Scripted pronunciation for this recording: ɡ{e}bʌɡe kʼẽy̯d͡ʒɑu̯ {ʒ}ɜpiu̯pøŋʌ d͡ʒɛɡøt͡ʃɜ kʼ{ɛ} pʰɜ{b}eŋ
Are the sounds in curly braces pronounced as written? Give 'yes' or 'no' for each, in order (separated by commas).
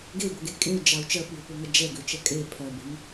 yes, no, no, yes